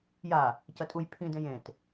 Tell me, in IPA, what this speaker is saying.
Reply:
j a | c ɐ tʼ u j pʰ ĩ d ẽ j ẽ t

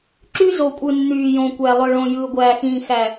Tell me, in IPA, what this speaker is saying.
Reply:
ǁ y˦ z o˨ kʷʼ ɯ˨ nː yː˨ j õ˨ kʷ æ˨ lˠ ø˨ ɭ õ˨ j ɯː˨ ɡʷ æː˨ x ĩː˨ x æ˨

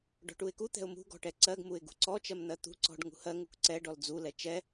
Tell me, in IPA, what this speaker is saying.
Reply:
ɖ ɔ̤ ʈ u ɪ̯ k u t̪ ɛ̤ ʊ̯ m ṳ ɡ ɔ̤ ʈ ɛ ǀ ɜ ɡ m u ɪ̯ ɡ ṳ ǀ ɔ t͡ʃ ɜ m n̪ ɜ t̪ ṳ ǀ ɔ̤ ɖ ŋ ṳ h ɜ ŋ u k ǀ ɛ ɖ ɔ l d͡z u l ɛ t͡ʃ ɛ

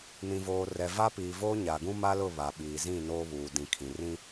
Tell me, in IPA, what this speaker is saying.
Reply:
n ĩ˨ v oː˨ r ɛ˨ v a˦ p iː˨ v oː˦ ɲ a˨ ɡ ũ˦ m a˦ l ʊ˦˨ β a˨ ɓ iː˨ z ĩ˦˨ n oː˦ β uː˨ d ĩ˨ kʰ ĩ˨ r ĩ˦

